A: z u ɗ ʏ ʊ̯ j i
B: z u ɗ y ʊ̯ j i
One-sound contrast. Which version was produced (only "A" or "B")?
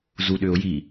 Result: A